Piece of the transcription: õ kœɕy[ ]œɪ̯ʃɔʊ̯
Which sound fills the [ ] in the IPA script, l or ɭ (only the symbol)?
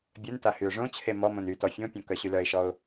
l